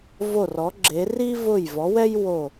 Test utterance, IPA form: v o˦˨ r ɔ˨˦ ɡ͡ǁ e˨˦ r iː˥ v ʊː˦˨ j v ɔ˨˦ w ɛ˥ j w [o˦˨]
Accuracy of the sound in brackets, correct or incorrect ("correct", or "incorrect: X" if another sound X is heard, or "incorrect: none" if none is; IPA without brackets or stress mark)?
correct